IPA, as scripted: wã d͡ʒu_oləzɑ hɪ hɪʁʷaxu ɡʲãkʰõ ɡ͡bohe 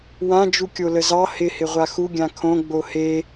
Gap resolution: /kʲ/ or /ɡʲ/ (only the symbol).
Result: kʲ